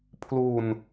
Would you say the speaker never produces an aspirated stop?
no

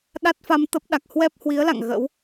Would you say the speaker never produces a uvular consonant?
yes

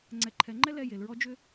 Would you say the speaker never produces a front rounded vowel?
no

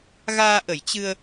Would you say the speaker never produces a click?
yes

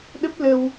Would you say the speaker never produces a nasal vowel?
yes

